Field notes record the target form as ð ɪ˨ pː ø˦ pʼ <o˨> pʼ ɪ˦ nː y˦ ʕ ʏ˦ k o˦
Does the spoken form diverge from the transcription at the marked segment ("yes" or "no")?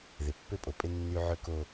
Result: no